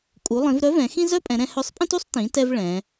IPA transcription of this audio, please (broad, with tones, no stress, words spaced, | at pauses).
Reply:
kʼu˩˧lˠĩ˩˧v ɾœ˧˥vɛ̃˩˧ xĩ˥zœ˥pʼɛ̃˩˧ɾɛ̃˧ hœ˧˥sˤpʼĩ˥tu˥sˤ tĩ˩˧tɛ˧v ɭɛ̃˩˧